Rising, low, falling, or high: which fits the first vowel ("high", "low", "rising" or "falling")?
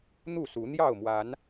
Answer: falling